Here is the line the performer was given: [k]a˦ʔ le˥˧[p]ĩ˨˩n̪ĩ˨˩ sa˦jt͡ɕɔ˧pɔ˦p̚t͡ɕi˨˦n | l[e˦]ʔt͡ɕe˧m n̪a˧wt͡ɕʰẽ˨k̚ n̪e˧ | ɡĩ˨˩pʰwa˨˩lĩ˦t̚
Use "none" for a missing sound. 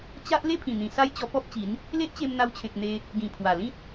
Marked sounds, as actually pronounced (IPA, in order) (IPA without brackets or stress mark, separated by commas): t͡ɕ, pʰ, e˦